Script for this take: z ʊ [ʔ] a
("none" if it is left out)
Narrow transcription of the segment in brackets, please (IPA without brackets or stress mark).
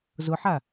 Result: ħ